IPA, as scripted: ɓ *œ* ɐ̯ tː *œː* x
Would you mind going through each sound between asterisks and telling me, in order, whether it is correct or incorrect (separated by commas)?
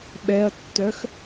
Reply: incorrect, incorrect